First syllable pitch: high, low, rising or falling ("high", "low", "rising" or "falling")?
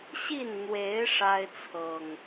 falling